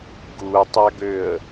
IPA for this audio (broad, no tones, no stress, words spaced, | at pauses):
ɡutˤaɡøə̯